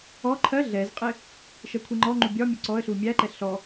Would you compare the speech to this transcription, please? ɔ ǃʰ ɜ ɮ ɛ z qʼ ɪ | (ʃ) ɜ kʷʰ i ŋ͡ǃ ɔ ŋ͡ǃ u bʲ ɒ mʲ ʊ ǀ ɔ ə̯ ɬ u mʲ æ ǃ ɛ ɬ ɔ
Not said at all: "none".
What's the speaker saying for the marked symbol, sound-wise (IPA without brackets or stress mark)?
ʃ